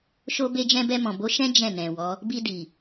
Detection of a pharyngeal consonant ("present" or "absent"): absent